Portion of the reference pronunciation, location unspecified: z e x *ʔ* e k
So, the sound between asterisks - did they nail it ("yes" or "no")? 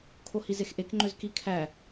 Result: yes